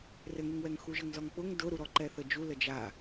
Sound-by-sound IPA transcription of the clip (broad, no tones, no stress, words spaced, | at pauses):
rɘŋuŋwɛŋ xuʒɘŋzɔŋk͡pʊŋ dʊɾuɾɔ ǃɛθəd͡ʒu ləd͡ʒa